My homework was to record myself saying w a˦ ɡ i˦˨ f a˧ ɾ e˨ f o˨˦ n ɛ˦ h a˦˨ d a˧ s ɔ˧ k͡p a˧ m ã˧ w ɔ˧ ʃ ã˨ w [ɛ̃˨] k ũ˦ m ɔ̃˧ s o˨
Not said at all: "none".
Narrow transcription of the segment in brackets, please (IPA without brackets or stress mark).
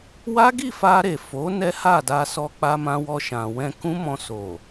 ɛ̃˧